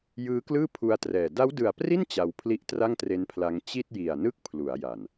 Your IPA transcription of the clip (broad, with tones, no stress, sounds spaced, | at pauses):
j ɯː˦˥ k l ɯː˥˩ pʰ u˧ a̯ t r ɛː˨˩ d a˦˥ w d ɯ˨˩ a̯ p r i˥˩ n t͡ɕ a˧ w pʰ l i˥˩ ʔ t r a˥˩ ŋ t r e˦˥ n pʰ l a˧ ŋ t͡ɕ i˥˩ t̚ j i˨˩ a̯ n ɯ˥˩ k̚ pʰ l u˩˦ a̯ j a˨˩ n